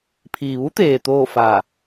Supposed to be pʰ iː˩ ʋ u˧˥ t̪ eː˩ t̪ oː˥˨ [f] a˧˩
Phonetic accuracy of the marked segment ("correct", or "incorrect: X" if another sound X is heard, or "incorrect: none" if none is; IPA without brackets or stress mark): correct